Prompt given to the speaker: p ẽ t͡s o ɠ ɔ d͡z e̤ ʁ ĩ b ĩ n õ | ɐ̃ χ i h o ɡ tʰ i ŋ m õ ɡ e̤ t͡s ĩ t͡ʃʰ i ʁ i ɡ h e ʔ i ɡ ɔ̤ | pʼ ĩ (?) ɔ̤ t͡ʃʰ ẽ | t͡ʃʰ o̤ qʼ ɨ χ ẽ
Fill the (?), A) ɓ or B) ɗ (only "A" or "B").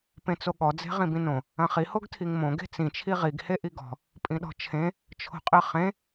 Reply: B